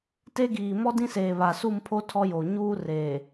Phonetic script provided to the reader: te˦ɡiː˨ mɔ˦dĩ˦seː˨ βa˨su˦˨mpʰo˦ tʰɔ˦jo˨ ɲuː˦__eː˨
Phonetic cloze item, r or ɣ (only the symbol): r